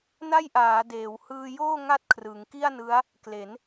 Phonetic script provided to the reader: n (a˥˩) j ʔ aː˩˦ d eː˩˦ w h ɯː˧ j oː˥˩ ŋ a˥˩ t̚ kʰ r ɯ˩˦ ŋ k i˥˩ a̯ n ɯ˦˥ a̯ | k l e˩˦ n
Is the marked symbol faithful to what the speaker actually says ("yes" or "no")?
yes